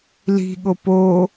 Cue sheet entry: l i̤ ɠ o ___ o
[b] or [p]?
p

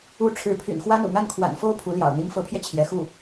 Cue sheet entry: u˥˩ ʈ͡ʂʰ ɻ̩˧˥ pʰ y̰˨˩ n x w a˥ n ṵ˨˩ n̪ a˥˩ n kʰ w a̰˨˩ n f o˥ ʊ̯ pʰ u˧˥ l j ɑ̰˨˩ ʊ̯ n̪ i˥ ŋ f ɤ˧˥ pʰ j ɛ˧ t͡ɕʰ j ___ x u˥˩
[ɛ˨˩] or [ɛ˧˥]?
ɛ˧˥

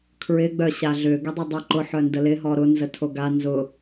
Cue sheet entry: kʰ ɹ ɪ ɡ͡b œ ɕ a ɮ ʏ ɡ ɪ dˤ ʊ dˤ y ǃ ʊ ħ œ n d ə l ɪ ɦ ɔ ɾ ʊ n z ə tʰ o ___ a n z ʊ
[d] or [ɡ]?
ɡ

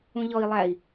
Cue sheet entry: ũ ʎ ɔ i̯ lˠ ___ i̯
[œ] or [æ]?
æ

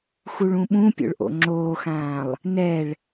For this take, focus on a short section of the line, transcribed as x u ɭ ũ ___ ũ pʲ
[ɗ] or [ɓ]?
ɓ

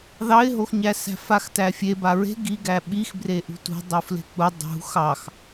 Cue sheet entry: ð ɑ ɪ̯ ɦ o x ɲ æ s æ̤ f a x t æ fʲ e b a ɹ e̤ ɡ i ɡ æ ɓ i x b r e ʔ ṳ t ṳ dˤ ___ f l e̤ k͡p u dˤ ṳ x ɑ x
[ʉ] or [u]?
u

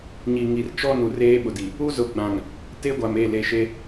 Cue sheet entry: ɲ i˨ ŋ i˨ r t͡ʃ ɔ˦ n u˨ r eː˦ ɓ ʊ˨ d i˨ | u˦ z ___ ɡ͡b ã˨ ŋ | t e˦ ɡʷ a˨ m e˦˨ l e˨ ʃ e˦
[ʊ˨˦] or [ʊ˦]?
ʊ˨˦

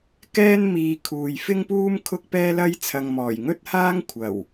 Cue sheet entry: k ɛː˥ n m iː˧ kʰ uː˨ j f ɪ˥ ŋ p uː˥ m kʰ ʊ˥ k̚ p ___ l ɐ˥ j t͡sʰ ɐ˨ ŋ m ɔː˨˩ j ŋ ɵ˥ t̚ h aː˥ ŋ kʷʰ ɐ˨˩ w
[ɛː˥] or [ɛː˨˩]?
ɛː˥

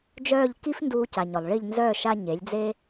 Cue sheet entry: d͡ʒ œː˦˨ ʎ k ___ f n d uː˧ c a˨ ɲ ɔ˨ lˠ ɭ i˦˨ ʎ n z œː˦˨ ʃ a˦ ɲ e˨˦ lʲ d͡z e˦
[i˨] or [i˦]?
i˦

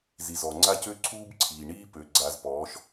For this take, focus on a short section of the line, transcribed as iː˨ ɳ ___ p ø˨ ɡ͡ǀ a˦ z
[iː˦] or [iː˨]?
iː˦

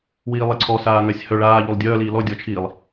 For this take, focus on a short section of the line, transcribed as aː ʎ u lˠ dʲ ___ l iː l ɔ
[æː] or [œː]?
œː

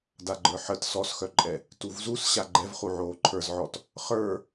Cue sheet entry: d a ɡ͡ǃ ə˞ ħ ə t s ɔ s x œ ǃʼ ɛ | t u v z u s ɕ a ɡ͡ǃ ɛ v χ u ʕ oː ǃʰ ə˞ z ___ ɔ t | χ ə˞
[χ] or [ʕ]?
ʕ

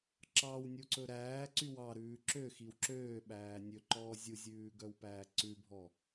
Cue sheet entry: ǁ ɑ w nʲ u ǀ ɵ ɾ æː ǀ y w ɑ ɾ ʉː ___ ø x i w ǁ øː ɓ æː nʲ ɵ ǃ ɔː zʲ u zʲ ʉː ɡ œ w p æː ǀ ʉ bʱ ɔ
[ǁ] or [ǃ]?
ǁ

